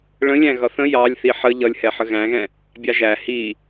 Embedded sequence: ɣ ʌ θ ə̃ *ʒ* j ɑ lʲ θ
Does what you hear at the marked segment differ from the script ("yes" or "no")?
yes